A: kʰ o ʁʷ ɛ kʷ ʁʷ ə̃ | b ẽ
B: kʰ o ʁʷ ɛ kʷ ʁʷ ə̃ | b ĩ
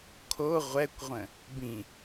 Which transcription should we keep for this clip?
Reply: B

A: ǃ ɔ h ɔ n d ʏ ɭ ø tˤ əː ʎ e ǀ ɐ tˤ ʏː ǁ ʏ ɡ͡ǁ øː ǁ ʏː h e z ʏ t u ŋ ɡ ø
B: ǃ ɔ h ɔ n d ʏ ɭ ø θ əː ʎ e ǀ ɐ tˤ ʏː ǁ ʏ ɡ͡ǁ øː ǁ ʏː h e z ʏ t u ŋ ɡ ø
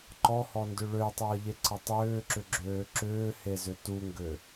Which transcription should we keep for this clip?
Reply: A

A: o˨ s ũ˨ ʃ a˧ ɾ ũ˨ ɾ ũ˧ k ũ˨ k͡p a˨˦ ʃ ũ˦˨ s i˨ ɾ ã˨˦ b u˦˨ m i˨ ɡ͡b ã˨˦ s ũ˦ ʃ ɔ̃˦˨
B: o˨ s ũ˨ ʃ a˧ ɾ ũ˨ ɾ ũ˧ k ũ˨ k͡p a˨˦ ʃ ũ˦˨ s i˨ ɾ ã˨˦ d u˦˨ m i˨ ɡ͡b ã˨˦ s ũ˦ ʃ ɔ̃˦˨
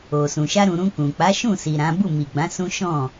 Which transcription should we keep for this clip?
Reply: A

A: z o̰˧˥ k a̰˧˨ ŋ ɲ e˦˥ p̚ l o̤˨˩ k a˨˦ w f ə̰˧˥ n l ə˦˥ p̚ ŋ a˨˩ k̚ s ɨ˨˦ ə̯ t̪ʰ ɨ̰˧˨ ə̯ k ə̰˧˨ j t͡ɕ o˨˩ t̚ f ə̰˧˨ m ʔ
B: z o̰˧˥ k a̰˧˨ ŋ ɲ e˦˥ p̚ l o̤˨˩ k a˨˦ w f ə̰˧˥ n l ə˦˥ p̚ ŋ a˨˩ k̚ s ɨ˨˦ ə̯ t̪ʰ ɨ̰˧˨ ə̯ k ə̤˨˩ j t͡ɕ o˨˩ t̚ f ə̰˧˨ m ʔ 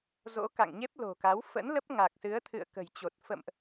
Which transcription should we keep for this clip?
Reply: B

